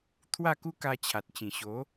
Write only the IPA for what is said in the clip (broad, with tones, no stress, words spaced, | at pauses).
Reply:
t̪ʰwa˥˧ku˦ ka˧t͡ɕʰa˨t̚t͡ɕĩ˨˩ ɕo˨˦